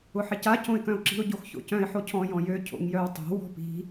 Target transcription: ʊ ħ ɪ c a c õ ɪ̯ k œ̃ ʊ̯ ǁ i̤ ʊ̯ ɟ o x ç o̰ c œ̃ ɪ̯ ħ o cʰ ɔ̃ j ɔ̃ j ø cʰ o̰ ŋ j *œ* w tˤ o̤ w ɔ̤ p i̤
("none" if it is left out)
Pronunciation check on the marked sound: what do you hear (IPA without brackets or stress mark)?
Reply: œ